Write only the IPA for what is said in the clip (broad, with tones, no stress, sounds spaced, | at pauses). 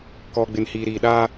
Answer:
k ɔ˨ ɡ͡b ɪ˨ n h iː˨ ɾ iː˨ ɗ a˦